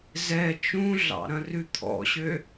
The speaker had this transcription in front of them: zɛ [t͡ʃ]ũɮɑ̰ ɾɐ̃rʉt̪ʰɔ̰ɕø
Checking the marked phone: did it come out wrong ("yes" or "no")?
no